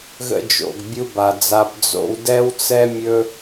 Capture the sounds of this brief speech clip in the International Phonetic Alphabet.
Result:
ɣ ə̰˧ d͡ʒ o̰˨ ɡ bʲ u˧ b a˨ d͡z a˧ b d͡z o̰˧ w d ɛ˦ w t͡s ɛ˦ mʲ ɵ˦

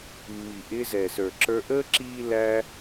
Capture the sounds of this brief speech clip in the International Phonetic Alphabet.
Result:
mː i˨ ʔ ɪː˧ z ɛ˨ s ə˞˨ ǁ ə˞˧ ʔ əː˦ ǁ iː˦ l æ˦

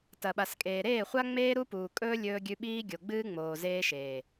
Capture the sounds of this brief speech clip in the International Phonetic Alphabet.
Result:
t ɐ˨ ɓ a˨ s kʼ eː˨ ɾ eː˦˨ χʷ a˦ ŋ͡m eː˦ ɾ u˦ p uː˨ kʼ ɵː˦ lʲ ɵː˦ ɡʲ ʉ˦ ɓ iː˦ ɡʲ o˨ ɡ͡b ɨː˦ ŋ͡m oː˨ z eː˦ ʃ eː˨

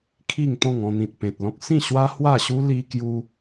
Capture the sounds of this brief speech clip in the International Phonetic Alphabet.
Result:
kʰ i˥˧ ŋ t̪ ɔ̃˥˧ ŋ ɔ̃˧ n̪ ĩ˨ t̚ p ẽ˨ t̚ l ɔ̃˦ k̚ s ĩ˥˧ ɕ w a˦ h w a˥˧ ɕ u˦ l i˦ k j u˦

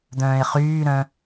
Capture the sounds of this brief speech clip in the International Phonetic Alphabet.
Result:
d̪ œ̃ː e̯ χ yː ɾ œ̃

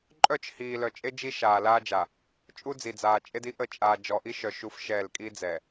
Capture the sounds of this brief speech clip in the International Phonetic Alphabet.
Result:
ǃʼ œ˦˨ t͡ʃ h iː˨ l œ˨ t͡ʃʼ e˦ d͡ʒ i˦ ʃ aː˨ l aː˦ d͡ʒ a˨ | t͡ʃʼ u˦ d͡z i˨ d͡z aː˨ t͡ʃʼ e˦ d i˦ ʔ ə˦˨ t͡ʃʼ aː˨ d͡ʒ ɔ˨ ʔ i˦ ʃ œ˨ ʃ u˦ f ʃ ɛː˦˨ l kʼ i˦ d͡z ɛ˨

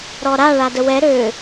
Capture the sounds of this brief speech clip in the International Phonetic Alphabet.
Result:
ɾ ɔ ɾ a ɭ a d ə w ɛ ɾ ø

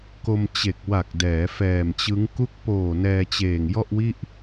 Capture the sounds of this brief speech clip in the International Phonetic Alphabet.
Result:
k o˧ m t͡ɕ e˨˩ k̚ w a˨˩ k̚ d ɛː˩˦ f ɛː˨˩ m t͡ɕ ɯ˦˥ ŋ k u˦˥ k̚ p oː˨˩ n ɛː˧ t͡ɕ eː˨˩ ŋ j ɔ˥˩ ʔ w i˥˩ ʔ

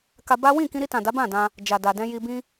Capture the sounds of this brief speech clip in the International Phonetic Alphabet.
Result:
k a˧ b a˦ w ĩ˦˨ k ĩ˧ ɾ i˧ t ã˨ d a˨˦ b ã˦˨ d ã˧ | d͡ʒ a˨ d a˨ d ɛ̃˧ j i˧ b ĩ˦

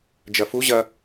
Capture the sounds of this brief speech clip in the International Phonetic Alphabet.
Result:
d͡ʒ ɐ f u ʑ ɐ

